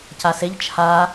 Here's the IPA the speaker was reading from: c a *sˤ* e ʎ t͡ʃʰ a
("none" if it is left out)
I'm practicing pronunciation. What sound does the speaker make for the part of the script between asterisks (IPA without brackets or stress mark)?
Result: s